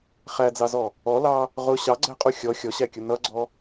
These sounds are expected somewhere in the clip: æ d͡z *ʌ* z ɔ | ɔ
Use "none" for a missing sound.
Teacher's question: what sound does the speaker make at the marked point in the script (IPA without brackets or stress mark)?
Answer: ɑ